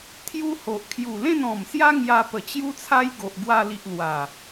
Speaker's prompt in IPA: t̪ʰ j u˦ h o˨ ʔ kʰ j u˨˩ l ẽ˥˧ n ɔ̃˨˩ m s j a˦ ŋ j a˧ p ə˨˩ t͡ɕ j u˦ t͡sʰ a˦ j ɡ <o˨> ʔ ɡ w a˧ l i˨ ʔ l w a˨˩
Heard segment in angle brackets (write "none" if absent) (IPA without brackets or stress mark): o˨